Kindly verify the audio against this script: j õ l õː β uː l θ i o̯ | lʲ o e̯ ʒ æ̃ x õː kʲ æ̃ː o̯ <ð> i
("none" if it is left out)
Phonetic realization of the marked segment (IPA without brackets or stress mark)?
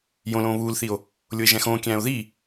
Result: ð